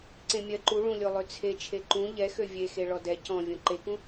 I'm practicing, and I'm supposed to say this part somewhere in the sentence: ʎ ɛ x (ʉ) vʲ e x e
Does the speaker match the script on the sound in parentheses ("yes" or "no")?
no